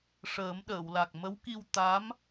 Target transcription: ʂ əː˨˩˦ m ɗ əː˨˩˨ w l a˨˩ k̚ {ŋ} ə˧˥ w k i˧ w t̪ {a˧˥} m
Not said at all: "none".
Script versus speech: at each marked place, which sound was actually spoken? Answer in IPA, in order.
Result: m, a˧˥

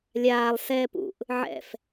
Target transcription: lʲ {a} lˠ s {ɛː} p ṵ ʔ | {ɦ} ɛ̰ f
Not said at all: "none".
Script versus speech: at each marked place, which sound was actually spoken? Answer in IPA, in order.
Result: aː, ɛː, ʕ

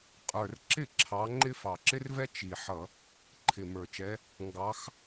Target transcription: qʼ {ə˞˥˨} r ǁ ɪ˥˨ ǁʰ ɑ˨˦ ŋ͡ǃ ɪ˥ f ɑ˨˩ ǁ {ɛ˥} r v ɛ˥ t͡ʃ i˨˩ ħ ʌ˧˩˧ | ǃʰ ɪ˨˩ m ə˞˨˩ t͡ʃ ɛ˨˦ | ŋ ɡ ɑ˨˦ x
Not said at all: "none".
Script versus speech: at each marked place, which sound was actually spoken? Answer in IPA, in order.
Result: ə˞˨˩, ɪ˥

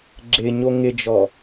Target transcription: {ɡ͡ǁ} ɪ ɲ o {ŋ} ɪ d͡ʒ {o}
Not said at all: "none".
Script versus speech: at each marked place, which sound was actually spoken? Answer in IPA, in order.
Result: ɡ͡ǁ, ŋ, ɔ

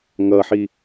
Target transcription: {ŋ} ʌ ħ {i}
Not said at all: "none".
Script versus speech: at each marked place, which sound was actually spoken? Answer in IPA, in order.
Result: ŋ, i

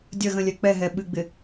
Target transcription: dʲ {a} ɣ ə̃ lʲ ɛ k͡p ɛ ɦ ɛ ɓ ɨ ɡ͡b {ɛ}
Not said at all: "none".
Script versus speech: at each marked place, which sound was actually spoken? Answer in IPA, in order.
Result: ə, ɪ

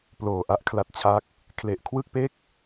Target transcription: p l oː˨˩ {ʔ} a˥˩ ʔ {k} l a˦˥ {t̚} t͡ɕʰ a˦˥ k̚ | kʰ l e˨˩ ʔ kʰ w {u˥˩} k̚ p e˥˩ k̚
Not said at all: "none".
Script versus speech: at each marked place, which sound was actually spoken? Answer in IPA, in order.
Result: ʔ, kʰ, t̚, ɯ˥˩

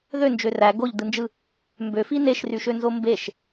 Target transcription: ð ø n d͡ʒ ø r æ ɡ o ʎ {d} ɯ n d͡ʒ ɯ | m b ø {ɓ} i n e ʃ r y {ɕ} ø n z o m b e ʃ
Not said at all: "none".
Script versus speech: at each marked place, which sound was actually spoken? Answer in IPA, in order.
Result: d, f, ʃ

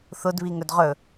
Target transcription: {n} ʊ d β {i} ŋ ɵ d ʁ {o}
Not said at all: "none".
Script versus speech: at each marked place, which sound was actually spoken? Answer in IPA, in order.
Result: θ, i, ɵ

